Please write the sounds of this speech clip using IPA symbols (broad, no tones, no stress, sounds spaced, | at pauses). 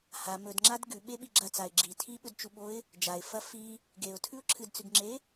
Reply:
h a m ɵ d ŋ͡ǁ a d ɡ ʉ ɓ e ɓ i ɡ͡ǁ ɐ t͡s a ɪ̯ ɡ͡ǁ i tʰ i ɓ ɵ d t͡ʃ u ɓ o ɪ̯ | d͡ʒ a ɪ̯ f ɐ f i | ɡ e ʊ̯ tʰ ʉ ʊ̯ ǁʰ ɨ d t͡s ʉ ɡ ŋ͡ǁ e